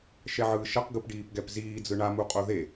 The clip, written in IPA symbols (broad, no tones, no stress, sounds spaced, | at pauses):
ʃ ɛ ʕ ɯː ʃ ʌ q ɡ ɯ p ɖ iː p ɡ ɛ p z iː d͡z ɯ ɳ a m u qʼ o ð e